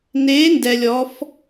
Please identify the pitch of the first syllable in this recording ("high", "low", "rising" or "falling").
rising